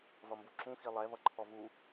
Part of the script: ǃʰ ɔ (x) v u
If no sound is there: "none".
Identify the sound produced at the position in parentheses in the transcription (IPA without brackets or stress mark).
none